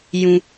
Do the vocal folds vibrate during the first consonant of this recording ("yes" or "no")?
yes